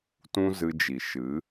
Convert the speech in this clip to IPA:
t ũ˧ z ɨ˧ d͡ʒ i˨ ʃ ɨ˨˦

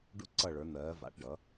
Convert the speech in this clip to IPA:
ɖ ṵ˧ ǀ ʌ˧˩ ɭ ə˞˩˧ n̪ ɜː˩˧ v a̰˩˧ ʈ ɖ ʌ˩˧

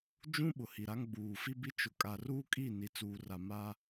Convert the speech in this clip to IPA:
d͡ʒ ũ˦ ɓ ʊ˨ h i˨ ɾ a˦ ŋ ɡ͡b uː˨ f i˦ b i˦ t͡ʃ ʊ˨ kʼ a˨ r uː˦ kʼ i˦˨ n i˨ t͡s uː˨ r a˨ m a˦

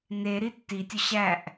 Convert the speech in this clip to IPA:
n e ɾ i tː i tʲ ʊ ɕ æ ʔ

